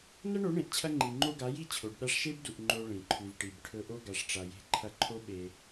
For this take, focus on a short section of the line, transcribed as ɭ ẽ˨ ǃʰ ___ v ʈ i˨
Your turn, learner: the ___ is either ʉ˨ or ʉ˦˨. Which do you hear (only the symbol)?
ʉ˨